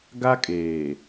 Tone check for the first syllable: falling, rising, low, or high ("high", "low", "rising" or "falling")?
high